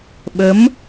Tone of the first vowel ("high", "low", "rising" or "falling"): rising